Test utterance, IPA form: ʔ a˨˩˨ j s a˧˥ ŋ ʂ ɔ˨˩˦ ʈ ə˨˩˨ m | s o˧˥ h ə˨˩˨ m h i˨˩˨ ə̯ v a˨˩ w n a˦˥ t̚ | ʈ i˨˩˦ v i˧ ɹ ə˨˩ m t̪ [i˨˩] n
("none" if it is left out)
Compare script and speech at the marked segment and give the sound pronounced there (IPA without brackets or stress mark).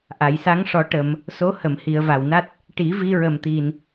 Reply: i˨˩